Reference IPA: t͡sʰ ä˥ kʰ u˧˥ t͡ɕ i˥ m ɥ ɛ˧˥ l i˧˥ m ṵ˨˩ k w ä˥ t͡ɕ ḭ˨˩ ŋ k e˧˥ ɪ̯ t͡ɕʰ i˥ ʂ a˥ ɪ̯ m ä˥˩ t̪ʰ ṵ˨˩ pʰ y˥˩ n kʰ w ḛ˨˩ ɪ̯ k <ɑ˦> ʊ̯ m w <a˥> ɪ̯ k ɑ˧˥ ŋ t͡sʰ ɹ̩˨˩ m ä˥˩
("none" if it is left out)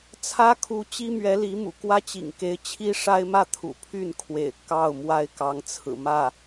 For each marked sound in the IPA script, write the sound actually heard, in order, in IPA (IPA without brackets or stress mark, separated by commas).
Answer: ɑ˥˩, a˥